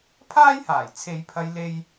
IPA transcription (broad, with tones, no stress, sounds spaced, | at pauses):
pʰ aː˥ j h aː˨˩ j t͡sʰ e˨˧ j pʰ ɐ˧ j l e˥ j